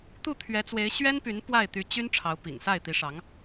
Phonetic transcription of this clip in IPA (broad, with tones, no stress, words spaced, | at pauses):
t̪u˥˩t̪ʰɥɛ˧˥t͡swe˧˥ɪ̯ ɕɥɛ˥npy˧˥n pwa˥˩ɪ̯t̪y˧˥t͡ɕy˥n ʈ͡ʂʰɑ˧˥ʊ̯pḭ˨˩ŋsa˥˩ɪ̯ t̪i˧˥ʂɑ˧˥ŋ